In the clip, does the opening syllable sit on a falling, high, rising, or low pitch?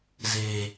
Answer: low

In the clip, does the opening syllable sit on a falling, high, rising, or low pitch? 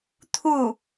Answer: falling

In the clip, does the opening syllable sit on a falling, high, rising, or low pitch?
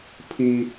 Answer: high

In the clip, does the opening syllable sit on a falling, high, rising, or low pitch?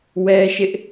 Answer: high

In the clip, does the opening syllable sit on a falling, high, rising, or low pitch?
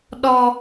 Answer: high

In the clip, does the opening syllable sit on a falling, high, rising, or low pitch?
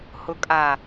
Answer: low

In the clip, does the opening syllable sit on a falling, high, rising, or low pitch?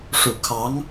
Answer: low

